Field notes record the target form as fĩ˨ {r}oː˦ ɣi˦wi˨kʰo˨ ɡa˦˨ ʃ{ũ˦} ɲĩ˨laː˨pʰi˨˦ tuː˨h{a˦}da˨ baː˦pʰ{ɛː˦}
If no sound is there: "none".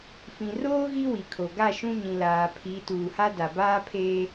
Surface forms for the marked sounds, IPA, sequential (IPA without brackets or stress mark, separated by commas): r, ũ˦, a˦, eː˦